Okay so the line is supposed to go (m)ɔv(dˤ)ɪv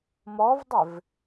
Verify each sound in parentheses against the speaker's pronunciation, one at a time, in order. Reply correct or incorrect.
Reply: correct, correct

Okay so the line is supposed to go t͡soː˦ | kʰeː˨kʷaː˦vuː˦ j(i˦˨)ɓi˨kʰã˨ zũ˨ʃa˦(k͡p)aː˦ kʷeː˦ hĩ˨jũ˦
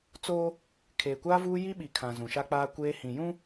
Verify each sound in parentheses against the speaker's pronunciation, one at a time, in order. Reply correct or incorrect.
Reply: incorrect: i˦, correct

